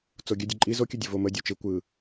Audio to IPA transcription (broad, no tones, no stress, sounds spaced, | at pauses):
t͡s o ɡʲ ə dʲ ə ǃʼ i z o kʲ ɯ dʲ ə v o m ə dʲ o t͡ʃ ɯ kʷ ɯ